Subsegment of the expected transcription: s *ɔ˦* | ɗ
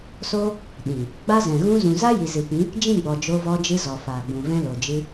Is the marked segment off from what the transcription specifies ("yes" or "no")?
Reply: yes